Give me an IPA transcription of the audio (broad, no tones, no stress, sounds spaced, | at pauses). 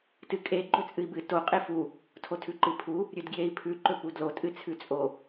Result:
t ɨ kʼ e ɡ͡ǃ ɵ t͡sʼ ɨ i̯ b ɨ t o qʼ e f u | tʰ o tʰ ʉ ǃ ɨ pʰ u | ɾʲ ʉ d ɡ j e i̯ pʰ ʉ ǃ ɵ p u d l o tʼ ɨ t͡sʰ ʉ t͡sʼ o